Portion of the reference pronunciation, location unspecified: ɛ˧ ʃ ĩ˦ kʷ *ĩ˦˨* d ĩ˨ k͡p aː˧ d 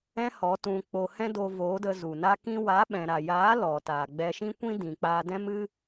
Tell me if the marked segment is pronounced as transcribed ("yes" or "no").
no